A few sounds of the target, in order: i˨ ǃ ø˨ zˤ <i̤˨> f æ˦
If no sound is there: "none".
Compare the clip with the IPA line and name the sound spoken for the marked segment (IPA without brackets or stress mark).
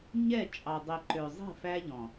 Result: i̤˦˨